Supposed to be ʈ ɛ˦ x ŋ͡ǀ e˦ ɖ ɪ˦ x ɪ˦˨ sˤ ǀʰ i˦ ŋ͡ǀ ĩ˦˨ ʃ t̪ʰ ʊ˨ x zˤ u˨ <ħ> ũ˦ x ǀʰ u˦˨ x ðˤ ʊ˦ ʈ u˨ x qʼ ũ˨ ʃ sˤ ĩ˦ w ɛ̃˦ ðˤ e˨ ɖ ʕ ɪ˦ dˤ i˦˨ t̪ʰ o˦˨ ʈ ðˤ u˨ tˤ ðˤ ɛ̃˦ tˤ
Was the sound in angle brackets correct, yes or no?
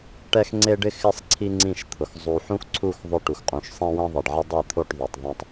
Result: yes